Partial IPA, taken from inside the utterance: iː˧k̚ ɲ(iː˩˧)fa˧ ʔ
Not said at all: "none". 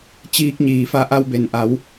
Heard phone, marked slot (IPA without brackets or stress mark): iː˩